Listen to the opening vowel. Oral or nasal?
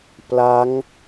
oral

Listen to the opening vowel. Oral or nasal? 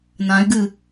nasal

